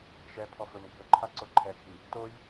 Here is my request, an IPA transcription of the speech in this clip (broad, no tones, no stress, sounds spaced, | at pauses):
ʃ ɛ pʰ ɔ f ɵ m ɡʱ ɵ ǃʰ a ǀ o ǃʰ ɛ ɡʱ i | t o j